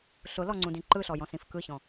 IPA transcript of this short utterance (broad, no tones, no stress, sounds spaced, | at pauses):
ɬ ʊ l ɔ ŋ͡ǀ ũ d ĩ ǃ ɯ ɬ ɔ j ɔ̃ s ĩ f k ɯ ç ɔ̃